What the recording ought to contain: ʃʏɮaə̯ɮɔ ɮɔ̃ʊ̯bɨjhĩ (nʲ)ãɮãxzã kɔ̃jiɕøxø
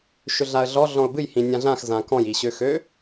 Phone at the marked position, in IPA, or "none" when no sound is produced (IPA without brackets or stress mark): nʲ